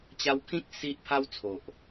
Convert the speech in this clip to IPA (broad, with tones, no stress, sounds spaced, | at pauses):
t͡ɕ a˧ w kʰ ĩ˦ k̚ s i˦ ʔ pʰ a˦ w t͡sʰ o˨ ʔ